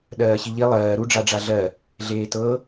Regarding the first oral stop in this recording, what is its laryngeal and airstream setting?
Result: implosive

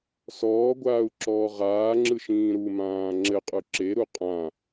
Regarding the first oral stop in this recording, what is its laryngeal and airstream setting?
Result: plain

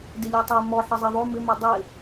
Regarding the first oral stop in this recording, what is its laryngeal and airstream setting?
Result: plain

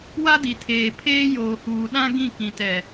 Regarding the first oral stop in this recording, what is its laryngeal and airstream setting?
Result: plain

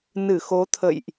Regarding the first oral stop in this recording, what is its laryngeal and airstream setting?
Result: aspirated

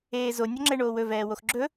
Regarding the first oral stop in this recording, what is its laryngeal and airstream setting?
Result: click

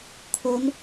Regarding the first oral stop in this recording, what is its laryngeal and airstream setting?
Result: aspirated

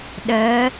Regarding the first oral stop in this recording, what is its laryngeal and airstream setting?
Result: implosive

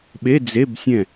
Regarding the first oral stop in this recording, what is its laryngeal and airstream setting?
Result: implosive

